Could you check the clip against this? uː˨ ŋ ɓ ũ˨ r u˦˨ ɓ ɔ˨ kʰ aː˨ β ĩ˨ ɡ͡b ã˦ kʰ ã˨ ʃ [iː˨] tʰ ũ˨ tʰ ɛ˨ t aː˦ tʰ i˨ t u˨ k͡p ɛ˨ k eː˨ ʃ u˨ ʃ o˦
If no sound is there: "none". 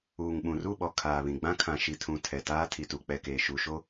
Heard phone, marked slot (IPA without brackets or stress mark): i˨